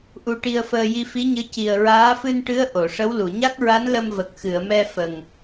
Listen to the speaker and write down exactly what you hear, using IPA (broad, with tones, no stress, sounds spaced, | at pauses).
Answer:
ʔ u˧ ʈ i˧ ə̯ f əː˧ j i˧ f i˧˥ ɲ ɨ˧˥ c i˨˩ ə̯ ɹ aː˧˥ f ɨ˧ n ʈ ɨ˧˥ ə̯ ʔ o˨˩˨ ʂ ə˧˥ w l u˨˩˨ ɲ a˦˥ k̚ ɹ a˧˥ n l ə˧ m v ə˨˩ k̚ x ɨ˨˩˨ ə̯ m ɛ˧ f ə˨˩ ŋ